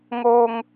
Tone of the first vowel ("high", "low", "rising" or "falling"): low